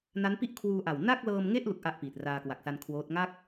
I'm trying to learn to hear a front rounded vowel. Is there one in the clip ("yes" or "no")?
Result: no